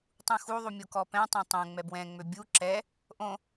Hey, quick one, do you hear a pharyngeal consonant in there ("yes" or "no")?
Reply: no